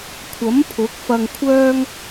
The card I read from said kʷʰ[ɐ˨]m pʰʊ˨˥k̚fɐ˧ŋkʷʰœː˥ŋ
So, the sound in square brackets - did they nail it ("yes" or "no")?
no